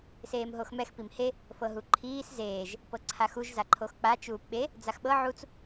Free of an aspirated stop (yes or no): no